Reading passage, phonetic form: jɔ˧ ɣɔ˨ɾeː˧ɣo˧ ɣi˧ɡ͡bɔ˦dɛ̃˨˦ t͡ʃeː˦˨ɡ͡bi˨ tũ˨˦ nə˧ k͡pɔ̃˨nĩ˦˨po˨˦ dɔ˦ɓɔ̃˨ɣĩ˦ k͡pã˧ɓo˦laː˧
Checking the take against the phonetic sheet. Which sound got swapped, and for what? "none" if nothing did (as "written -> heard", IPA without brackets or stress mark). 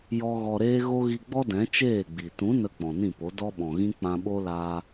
none